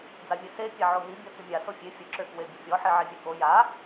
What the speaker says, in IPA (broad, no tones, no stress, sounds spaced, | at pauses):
d͡z a vʲ e s e pʲ a ʕ o ɦ i bʲ ɔ t͡s y mʲ a s o fʲ e fʲ ə ǁ ø k w e bʲ ə fʲ ɔ ħ i ʕ i vʲ ø k o j a